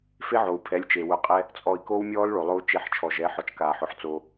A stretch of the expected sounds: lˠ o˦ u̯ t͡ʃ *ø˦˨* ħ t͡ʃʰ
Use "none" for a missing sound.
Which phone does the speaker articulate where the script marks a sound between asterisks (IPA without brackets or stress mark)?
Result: e˦˨